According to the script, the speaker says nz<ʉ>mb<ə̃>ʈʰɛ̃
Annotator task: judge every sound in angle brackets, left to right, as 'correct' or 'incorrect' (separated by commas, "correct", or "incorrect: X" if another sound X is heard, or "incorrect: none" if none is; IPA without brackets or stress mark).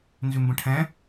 correct, correct